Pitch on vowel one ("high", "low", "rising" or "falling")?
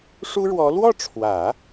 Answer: high